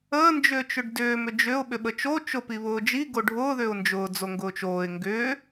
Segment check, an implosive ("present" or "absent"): present